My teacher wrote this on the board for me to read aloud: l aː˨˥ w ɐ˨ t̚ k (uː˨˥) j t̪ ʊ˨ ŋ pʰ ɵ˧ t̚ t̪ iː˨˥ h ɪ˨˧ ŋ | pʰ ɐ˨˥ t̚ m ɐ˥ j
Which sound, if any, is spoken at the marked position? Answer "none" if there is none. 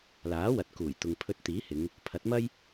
uː˨˩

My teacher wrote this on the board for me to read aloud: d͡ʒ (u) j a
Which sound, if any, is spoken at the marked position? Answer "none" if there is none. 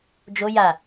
o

